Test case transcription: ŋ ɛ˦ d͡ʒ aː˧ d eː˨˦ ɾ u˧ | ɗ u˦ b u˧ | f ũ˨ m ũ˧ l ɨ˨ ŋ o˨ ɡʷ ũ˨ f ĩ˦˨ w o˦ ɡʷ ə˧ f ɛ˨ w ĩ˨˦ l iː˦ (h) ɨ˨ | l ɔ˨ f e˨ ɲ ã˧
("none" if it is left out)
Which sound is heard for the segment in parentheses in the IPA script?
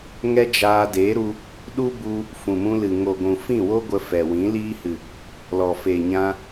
h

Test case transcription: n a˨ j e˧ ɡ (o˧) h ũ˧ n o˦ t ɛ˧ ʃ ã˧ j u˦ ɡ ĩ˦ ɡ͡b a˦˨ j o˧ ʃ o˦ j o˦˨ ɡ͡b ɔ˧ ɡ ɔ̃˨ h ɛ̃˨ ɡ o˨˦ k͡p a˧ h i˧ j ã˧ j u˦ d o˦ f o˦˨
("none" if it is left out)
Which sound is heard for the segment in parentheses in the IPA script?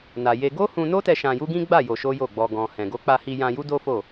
o˦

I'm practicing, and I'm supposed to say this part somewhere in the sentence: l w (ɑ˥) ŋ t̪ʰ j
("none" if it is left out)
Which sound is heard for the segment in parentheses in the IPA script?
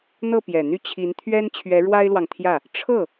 ɑ˨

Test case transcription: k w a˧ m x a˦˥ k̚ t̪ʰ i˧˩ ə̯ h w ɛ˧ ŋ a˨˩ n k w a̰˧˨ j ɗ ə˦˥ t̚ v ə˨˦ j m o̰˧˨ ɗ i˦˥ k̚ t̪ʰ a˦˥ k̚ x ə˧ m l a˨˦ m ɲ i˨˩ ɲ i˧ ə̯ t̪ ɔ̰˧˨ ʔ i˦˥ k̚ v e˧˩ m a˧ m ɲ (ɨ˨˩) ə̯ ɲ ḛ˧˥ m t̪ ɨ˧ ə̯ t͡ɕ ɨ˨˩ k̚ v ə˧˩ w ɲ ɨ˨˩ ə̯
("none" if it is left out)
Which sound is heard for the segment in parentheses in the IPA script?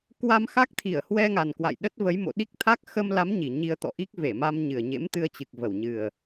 ɨ˨˩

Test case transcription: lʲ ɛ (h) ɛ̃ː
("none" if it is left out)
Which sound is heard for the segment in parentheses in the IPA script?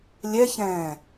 ç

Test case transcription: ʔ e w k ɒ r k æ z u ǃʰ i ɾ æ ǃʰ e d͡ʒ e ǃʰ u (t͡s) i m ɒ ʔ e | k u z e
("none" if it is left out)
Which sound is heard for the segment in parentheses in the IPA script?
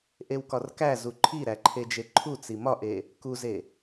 t͡s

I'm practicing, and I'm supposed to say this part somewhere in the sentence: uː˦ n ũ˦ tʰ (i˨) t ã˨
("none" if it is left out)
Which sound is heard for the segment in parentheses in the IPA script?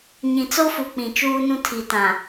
i˨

